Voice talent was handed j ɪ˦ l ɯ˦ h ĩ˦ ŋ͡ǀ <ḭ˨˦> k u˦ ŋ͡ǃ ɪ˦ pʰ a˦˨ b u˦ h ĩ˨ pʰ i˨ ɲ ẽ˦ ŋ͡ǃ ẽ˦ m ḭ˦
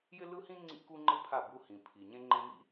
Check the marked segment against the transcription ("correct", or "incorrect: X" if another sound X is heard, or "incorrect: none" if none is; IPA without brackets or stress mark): incorrect: ḭ˦